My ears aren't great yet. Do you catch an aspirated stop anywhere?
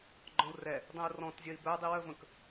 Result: no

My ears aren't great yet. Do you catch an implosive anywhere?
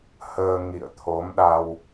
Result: yes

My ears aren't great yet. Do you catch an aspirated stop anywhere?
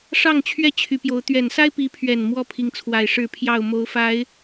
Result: yes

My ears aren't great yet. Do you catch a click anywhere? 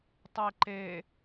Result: yes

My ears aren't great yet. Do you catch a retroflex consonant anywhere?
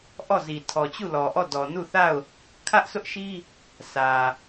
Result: no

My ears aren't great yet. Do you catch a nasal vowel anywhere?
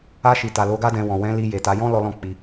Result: yes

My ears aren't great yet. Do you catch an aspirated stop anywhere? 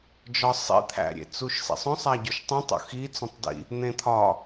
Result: yes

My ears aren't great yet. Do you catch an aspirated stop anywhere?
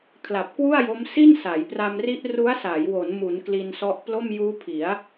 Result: yes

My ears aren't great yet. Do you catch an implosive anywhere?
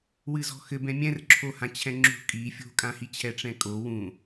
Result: no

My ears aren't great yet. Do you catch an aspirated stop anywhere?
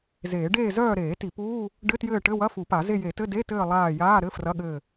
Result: no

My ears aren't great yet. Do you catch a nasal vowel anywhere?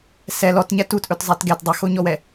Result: no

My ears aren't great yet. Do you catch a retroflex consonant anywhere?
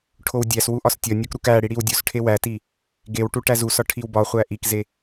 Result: yes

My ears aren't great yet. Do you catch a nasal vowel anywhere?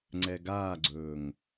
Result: no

